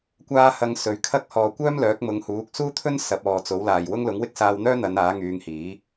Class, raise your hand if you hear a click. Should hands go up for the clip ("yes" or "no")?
no